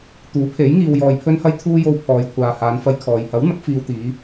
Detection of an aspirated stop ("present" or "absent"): present